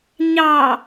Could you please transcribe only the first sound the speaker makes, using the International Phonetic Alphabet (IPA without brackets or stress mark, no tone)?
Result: ɲ